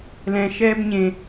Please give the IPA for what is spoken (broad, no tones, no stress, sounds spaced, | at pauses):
l ɛ̃ ʃ ɛː b ɲ ẽ